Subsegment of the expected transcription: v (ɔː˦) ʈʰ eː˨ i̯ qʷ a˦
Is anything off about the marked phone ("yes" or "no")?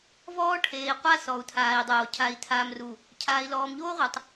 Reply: no